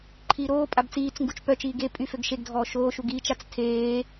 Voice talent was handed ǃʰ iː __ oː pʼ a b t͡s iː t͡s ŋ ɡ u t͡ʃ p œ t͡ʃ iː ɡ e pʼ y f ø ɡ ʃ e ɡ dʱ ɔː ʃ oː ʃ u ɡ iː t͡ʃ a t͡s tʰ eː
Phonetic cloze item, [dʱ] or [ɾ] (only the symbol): ɾ